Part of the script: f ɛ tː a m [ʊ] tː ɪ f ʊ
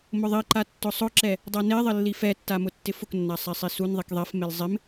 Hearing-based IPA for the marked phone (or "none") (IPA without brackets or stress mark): ʊ